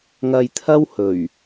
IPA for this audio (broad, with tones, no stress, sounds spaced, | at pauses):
ŋ ɐ˧ j t̪ʰ ɐ˥ w h ɵ˨˩ ɥ